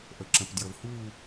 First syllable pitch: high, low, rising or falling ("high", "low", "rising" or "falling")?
low